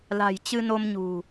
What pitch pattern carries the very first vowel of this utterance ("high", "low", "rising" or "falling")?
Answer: low